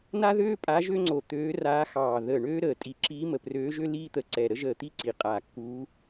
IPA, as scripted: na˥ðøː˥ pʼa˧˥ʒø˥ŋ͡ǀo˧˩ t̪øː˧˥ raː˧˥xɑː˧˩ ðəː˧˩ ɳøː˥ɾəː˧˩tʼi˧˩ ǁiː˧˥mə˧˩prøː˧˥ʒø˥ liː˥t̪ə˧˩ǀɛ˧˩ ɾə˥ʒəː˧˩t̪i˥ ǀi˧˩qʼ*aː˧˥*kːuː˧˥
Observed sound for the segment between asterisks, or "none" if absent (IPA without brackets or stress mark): aː˧˩